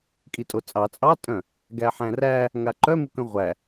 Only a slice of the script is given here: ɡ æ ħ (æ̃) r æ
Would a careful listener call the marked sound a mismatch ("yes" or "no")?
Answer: no